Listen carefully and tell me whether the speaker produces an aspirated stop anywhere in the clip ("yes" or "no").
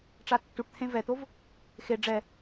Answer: yes